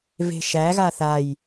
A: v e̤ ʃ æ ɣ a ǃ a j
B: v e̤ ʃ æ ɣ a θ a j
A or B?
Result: B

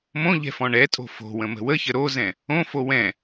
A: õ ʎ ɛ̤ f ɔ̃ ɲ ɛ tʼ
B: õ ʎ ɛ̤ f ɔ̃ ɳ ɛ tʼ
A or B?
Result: B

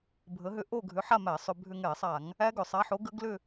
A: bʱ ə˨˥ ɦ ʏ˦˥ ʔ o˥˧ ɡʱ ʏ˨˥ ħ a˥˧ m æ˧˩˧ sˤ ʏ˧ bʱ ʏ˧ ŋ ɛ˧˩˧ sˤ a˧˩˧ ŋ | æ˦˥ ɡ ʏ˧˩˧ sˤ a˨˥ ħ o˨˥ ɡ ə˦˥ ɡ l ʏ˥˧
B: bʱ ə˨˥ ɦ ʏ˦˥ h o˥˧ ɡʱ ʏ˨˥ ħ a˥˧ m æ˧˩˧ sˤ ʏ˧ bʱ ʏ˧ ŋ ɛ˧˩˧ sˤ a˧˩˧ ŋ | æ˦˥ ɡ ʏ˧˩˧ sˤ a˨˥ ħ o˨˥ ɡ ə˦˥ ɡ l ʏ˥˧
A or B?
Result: A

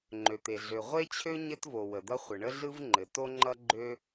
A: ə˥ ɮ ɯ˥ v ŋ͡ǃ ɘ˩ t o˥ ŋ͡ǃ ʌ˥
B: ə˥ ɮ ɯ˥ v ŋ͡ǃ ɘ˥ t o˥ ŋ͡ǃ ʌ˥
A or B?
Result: A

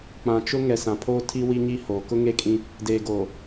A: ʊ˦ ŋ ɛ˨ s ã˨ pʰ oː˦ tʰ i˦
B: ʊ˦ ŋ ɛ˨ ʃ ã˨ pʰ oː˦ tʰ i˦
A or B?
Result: A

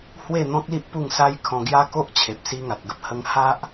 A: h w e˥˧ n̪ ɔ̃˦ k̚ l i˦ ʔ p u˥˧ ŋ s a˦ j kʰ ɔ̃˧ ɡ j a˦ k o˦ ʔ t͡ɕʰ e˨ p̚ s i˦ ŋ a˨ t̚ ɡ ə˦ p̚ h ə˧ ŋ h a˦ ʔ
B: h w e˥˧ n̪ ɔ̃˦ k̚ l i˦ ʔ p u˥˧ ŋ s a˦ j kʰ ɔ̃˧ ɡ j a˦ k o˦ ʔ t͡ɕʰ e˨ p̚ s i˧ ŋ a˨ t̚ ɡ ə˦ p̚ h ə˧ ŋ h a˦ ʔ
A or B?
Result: A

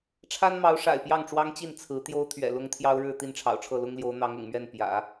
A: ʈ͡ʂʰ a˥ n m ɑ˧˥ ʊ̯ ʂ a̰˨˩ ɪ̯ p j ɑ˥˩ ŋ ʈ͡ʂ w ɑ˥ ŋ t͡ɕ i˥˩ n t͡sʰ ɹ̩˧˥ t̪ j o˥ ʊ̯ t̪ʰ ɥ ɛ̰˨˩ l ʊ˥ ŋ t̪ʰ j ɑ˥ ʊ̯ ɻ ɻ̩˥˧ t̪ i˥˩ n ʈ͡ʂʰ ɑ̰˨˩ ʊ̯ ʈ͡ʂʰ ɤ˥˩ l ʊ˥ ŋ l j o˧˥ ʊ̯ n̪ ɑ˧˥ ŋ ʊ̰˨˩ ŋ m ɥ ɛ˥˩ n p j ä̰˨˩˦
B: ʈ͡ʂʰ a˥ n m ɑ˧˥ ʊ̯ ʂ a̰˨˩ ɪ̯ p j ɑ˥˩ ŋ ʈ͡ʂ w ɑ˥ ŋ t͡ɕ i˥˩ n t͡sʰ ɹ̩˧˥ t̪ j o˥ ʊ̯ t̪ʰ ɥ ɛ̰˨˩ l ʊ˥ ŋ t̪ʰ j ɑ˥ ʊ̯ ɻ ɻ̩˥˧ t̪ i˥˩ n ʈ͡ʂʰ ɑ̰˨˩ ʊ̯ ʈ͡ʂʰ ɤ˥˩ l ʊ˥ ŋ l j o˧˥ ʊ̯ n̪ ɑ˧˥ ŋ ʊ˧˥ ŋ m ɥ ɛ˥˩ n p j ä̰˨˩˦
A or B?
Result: A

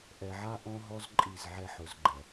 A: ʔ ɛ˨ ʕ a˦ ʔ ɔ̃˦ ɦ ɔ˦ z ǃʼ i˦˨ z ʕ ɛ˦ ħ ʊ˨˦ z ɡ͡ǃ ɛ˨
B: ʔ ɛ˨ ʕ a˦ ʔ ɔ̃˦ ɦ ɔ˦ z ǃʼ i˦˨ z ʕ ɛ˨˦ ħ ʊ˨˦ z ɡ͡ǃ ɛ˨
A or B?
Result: A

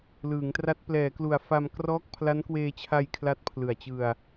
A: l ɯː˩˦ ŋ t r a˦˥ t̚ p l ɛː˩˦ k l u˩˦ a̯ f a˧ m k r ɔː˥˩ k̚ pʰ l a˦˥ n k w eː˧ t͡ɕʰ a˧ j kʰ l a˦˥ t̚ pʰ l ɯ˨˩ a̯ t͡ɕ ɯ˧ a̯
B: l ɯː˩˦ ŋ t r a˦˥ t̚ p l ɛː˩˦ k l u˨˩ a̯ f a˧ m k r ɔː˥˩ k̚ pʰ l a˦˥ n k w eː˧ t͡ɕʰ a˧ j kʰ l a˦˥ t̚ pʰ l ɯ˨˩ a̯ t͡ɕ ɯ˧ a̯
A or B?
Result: B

